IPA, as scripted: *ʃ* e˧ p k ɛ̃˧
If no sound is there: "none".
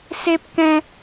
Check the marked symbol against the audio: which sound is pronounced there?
s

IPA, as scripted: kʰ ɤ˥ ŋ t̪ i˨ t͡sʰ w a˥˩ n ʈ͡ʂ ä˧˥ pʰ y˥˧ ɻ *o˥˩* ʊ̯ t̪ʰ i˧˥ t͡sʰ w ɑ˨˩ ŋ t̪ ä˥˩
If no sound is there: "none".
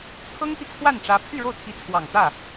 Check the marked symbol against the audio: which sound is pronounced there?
o˥˩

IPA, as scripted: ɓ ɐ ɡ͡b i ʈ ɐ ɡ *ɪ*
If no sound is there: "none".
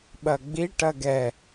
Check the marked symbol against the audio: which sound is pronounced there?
ɛ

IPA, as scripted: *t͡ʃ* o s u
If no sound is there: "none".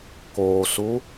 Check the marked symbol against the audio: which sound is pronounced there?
k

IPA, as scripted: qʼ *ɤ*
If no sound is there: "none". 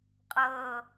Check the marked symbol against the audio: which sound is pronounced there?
ɤ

